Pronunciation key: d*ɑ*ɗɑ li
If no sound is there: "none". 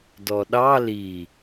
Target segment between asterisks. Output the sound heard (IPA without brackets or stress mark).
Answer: ɔ